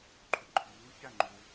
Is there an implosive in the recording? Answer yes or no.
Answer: no